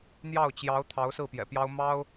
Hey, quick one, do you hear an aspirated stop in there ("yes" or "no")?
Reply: yes